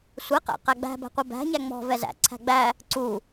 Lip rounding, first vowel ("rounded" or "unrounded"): unrounded